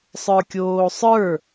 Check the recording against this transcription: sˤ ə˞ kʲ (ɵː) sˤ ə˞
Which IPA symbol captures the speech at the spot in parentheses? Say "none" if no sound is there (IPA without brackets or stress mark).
oː